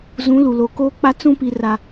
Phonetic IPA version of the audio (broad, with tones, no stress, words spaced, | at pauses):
zũ˨˦ lu˨lo˨ koː˦k͡pa˦t͡sũ˦ pi˨ra˨